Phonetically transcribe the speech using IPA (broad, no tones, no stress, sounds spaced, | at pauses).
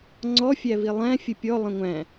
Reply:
ŋ͡ǀ ɔ fʲ æ v i lˠ æ̃ fʲ ə pʲ ɔ lˠ ə̃ ŋʷ æ̃